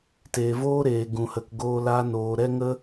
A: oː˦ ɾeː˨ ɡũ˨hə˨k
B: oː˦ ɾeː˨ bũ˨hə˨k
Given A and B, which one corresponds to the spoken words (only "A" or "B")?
A